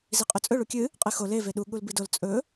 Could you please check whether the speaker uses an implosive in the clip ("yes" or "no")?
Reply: yes